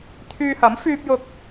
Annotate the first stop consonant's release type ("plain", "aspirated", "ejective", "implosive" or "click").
aspirated